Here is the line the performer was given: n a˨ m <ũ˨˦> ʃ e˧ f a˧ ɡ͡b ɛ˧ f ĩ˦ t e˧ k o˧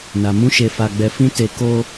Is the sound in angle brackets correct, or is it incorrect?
correct